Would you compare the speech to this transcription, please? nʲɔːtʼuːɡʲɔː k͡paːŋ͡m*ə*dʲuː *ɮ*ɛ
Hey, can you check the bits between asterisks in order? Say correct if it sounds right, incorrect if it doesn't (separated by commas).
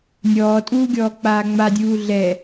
incorrect, correct